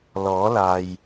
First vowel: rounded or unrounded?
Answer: rounded